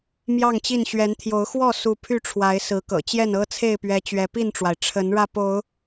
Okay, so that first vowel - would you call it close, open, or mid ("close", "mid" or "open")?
open